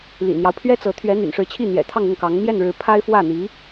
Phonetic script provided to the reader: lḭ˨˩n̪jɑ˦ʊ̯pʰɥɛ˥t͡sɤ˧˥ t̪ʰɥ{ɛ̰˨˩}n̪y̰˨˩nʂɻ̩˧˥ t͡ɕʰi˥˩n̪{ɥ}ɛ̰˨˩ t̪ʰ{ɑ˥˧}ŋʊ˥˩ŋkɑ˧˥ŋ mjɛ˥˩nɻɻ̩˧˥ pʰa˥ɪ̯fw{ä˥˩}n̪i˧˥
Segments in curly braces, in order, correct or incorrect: incorrect: ɛ˧˥, incorrect: j, correct, correct

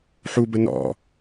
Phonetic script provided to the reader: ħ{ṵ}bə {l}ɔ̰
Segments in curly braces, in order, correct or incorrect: incorrect: u, incorrect: n

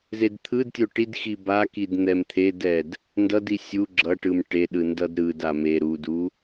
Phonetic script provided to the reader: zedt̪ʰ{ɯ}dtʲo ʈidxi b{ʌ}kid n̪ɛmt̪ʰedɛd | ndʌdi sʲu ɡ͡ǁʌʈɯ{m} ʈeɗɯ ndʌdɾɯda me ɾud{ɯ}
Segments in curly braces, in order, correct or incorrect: correct, incorrect: a, correct, incorrect: u

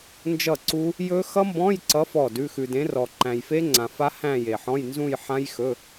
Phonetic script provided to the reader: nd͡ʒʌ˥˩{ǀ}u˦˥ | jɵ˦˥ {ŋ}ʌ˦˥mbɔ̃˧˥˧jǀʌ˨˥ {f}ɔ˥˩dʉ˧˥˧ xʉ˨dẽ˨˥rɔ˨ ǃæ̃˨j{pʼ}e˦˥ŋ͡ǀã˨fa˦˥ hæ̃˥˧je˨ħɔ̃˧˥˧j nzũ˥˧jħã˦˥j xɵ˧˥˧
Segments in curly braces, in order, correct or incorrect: correct, incorrect: x, correct, incorrect: f

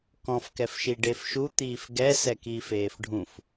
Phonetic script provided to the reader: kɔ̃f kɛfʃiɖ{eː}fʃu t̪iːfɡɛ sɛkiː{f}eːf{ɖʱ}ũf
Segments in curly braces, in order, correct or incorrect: incorrect: e, correct, correct

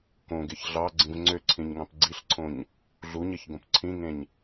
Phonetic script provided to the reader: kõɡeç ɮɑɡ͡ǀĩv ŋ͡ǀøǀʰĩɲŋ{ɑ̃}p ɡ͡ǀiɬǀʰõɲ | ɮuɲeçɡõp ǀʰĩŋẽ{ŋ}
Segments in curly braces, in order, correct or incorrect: correct, incorrect: ɲ

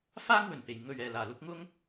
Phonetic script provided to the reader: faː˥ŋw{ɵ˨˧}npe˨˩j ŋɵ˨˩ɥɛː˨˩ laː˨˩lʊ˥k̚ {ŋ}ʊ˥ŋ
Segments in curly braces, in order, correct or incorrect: incorrect: ɵ˨˩, correct

